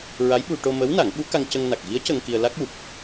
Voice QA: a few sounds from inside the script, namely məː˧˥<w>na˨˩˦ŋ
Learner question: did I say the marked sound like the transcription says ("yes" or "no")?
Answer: yes